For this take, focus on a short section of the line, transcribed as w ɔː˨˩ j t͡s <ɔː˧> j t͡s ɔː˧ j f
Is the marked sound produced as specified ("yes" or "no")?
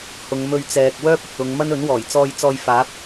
yes